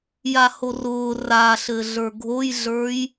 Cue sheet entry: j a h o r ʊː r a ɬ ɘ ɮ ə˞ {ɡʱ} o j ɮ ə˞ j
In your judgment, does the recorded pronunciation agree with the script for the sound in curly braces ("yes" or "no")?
yes